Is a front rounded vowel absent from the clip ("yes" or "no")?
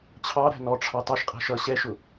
yes